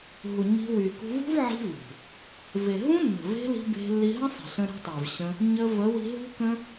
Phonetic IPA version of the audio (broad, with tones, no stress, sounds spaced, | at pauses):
ɦ u˨ ɲ i̤˧ w y˨ k ṳ˧ v ṳ˦ v ʕ i̤˦ v ṳ˨ | v e˨ ɦ ũ˦ nː ə̤˨ v e̤˦ l i̤˧ b e̤˧ lː i˧ ɦ ə̃˦ sˤ i̤˨ ɬ ə̃˧ ɾ e̤˧ tˤ e˨ v ɕ ə̃˧ | ɲ ə˧ v ə˨˦ w i̤˧ ɦ ṳ˦ k ə̃˦